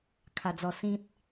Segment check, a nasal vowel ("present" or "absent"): present